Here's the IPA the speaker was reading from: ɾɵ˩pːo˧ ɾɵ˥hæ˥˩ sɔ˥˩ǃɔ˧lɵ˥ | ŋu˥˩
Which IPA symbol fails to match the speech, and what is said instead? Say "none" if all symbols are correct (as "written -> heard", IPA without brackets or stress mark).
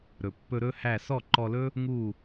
o˧ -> ɵ˧